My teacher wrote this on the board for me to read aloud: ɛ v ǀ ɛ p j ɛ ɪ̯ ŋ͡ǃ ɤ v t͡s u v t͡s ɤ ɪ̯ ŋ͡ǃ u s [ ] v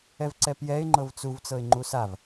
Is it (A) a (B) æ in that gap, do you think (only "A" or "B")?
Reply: A